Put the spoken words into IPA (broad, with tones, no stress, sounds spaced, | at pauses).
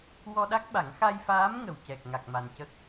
w ɔ˧ ɗ a˦˥ k̚ ɓ a˨˩˦ ŋ x a˧ j f aː˧˥ m ŋ ə˨˩ w c ɛ˨˩ k̚ ŋ a˨˩ k̚ m a˨˩ n c ə˦˥ k̚